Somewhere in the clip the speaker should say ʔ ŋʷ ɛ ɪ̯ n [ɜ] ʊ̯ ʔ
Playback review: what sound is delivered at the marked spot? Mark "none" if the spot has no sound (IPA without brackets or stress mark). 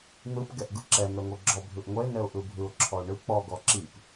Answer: ɛ